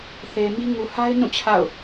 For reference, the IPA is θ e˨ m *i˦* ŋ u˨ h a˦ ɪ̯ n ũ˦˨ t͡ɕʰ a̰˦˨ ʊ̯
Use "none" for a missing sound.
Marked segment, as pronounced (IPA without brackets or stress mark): i˦